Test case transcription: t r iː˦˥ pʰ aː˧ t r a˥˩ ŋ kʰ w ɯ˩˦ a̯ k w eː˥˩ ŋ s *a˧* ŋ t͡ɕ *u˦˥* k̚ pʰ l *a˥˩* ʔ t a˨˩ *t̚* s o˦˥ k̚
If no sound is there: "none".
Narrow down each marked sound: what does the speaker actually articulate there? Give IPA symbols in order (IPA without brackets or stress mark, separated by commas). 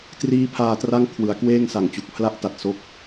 a˨˩, u˨˩, a˥˩, t̚